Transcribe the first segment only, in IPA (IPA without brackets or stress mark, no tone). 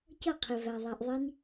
c